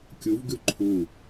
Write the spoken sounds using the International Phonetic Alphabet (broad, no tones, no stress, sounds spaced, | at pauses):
kʲ u v ɡ ʉ ǃʰ u